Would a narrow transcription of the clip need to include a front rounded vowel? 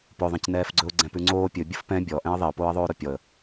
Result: no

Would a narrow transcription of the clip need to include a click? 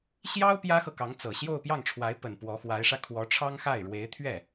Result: no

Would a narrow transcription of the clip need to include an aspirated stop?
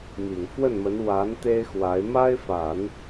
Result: no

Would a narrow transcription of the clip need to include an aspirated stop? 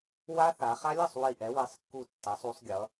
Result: no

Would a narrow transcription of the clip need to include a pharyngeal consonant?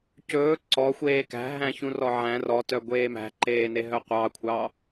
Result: yes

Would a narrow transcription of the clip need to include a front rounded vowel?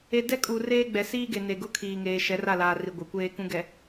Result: no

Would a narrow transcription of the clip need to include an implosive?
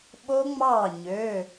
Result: yes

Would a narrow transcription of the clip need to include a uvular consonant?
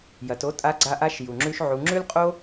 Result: yes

